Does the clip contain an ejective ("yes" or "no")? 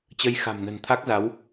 no